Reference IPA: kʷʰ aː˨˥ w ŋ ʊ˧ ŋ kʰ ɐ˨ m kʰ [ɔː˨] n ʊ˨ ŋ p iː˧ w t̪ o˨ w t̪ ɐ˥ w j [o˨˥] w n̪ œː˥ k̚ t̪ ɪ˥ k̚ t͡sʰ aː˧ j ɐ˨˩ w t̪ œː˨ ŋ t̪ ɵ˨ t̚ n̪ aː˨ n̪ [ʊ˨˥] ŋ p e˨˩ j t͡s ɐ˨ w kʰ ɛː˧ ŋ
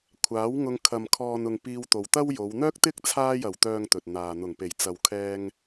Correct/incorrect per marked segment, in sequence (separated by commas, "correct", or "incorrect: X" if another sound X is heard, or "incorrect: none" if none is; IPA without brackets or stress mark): correct, incorrect: o˨˧, incorrect: ʊ˨˩